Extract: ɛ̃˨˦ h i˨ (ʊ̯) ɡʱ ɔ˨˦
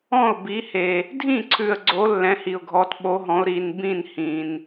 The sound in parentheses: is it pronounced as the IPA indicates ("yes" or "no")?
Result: yes